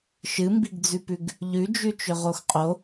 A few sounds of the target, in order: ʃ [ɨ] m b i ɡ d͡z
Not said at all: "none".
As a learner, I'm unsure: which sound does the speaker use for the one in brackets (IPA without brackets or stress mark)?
ɨ